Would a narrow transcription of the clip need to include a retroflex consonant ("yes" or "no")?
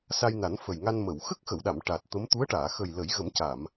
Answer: yes